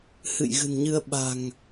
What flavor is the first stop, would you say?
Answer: implosive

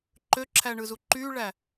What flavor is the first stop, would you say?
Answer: click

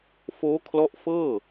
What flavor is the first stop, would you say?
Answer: aspirated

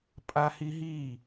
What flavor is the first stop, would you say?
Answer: ejective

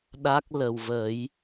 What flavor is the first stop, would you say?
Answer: implosive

